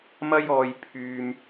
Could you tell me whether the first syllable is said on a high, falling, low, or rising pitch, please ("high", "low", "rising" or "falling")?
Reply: high